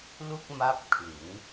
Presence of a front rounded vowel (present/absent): absent